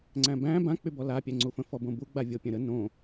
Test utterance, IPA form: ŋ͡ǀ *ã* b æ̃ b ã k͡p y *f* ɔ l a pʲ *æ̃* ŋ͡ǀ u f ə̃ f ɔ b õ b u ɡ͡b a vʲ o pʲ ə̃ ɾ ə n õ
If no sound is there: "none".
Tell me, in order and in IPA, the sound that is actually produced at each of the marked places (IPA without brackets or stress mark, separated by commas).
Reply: æ̃, b, æ